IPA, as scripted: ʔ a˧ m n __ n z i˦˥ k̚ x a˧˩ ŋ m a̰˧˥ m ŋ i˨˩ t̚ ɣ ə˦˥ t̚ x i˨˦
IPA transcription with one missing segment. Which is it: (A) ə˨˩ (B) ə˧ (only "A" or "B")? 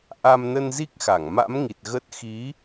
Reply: B